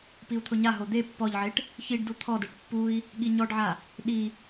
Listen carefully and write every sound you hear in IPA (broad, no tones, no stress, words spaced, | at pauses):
piu̯t̪ʰʊɲaɦo d̪e pːɔʎʕeʈ | çiɖdu t̪ʰɔdeʈ pːui̯ | ɠiɲɔɖʕa | ɗi